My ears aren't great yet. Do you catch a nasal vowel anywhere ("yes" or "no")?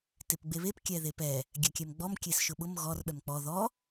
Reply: no